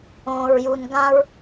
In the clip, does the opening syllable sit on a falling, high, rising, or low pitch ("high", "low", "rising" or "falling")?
low